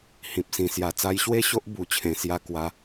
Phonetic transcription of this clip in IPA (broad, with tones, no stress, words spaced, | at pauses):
hĩ˨p̚sĩ˨˩ sja˧ t͡sa˧jɕwe˥˧ɕo˦ʔ bu˧ t͡ɕʰẽ˧sja˥˧ kwa˦